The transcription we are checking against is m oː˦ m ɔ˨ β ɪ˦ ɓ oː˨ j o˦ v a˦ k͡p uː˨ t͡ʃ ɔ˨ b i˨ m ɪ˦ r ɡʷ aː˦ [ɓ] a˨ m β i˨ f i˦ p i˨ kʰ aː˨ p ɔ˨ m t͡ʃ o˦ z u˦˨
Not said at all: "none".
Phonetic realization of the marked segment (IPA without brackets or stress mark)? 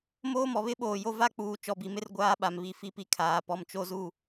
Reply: ɓ